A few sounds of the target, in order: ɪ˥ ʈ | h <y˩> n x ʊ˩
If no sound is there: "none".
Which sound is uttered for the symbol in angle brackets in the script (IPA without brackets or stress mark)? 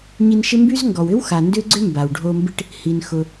i˩